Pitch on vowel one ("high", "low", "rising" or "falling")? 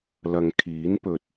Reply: low